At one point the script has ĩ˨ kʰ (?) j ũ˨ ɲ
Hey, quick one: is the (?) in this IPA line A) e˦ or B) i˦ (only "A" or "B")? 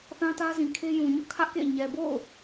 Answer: A